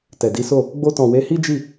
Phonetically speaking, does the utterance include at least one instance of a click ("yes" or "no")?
no